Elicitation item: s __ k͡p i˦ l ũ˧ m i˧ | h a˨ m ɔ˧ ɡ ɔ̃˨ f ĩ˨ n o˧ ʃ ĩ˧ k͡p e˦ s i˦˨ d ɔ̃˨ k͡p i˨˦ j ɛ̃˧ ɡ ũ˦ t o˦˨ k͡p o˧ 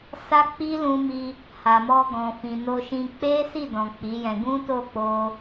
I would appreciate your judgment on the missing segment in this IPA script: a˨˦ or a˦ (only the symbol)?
a˦